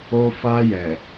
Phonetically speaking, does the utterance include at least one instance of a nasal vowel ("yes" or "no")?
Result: no